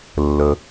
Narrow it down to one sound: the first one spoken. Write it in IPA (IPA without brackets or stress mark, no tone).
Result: lː